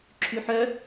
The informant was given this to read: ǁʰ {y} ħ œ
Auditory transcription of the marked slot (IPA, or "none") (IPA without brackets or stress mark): y